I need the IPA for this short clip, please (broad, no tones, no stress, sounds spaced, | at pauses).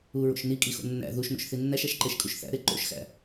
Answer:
u ɹ o̰ ʃ n i kʼ i x o̰ nː æ̰ ð u ʃ n o̰ ʃ θ i nː æ ʃ æ ʃ ǃ e ʃ kʼ u ʃ θ æ̰ ɾ e ǃ o̰ ʃ x æ̰